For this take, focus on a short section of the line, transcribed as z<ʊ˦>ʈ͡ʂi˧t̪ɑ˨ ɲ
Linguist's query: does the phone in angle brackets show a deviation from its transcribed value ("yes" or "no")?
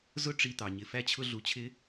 no